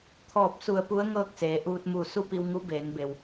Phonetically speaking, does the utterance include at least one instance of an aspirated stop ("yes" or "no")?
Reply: yes